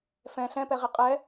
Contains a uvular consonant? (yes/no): yes